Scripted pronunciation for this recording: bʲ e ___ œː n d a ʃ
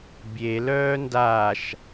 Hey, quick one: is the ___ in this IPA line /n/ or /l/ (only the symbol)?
l